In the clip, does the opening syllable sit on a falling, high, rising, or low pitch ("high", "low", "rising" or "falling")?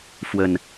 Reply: low